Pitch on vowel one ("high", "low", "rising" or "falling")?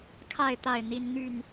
falling